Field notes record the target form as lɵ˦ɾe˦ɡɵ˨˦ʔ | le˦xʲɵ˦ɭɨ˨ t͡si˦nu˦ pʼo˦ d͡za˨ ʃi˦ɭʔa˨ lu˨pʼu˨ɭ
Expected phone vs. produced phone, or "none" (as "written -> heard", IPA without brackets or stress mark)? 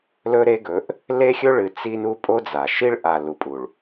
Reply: none